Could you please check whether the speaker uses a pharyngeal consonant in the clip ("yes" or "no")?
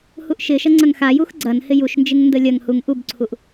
no